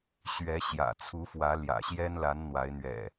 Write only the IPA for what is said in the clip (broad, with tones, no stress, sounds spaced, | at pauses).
ɕ ɥ ɛ˨˦ ɕ j ä̰˨˩ t͡sʰ u˨˦ f w ä˨˦ l j ä̰˨˩ ɕ j ɛ˦ n l a˨˦ n n̪ w a˨˦ ɪ̯ n̪ ɥ ɛ̰˨˩